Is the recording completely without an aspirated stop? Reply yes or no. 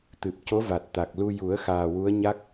yes